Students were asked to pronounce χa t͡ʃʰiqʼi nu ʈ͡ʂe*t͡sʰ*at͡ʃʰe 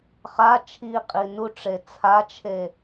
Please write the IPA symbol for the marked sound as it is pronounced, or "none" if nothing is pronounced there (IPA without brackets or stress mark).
t͡sʰ